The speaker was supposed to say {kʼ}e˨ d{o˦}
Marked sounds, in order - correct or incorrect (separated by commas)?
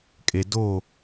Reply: correct, incorrect